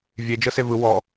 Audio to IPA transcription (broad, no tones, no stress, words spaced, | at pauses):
vʲe d͡ʒɤsevɯ wɔ